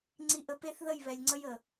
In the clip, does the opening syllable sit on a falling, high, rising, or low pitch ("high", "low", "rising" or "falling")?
high